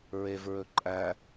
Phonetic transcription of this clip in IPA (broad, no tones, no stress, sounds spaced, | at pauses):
ɹ e v ɹ ɵ ǃʼ æ